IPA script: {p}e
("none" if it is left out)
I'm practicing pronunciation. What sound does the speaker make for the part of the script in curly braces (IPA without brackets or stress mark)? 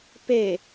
p